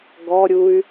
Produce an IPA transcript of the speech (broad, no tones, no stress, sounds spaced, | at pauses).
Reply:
ɡ ɔ ɾʲ u y̯